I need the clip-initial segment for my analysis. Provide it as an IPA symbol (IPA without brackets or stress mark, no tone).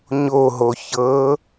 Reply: ɲ